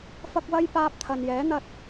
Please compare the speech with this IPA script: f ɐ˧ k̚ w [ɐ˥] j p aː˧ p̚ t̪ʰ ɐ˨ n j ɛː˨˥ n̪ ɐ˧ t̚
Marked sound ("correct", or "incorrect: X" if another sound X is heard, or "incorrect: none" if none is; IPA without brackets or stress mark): correct